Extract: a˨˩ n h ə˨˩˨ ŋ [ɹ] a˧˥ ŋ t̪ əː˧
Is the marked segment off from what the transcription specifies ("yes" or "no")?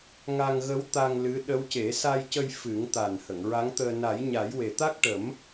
no